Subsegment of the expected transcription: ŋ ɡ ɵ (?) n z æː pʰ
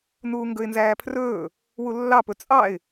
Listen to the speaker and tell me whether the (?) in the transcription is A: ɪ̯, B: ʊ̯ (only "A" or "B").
A